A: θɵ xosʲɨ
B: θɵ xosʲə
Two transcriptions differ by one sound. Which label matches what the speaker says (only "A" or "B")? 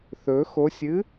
A